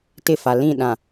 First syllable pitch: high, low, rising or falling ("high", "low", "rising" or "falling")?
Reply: falling